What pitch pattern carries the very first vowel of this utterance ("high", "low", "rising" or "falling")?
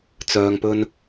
low